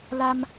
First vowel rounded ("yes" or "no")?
no